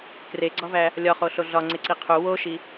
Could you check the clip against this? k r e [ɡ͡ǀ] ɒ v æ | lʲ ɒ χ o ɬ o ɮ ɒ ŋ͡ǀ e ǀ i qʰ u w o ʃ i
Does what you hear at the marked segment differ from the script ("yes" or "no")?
no